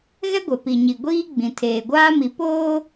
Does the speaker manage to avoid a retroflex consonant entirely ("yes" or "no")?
yes